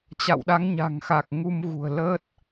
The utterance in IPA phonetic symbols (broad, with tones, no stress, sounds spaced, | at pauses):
t͡ɕ a̰˧˨ w ɗ a˨˦ ŋ ɲ a̤˨˩ ŋ x a˨˩ k̚ ŋ u˧ m ɣ ṳ˨˩ ə̯ l ə˦˥ t̚